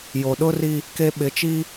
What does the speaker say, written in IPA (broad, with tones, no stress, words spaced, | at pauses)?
jo˨ɗʊ˦ri˦ | ke˨ ɓɪ˨t͡ʃi˦